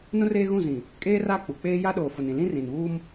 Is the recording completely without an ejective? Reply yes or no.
no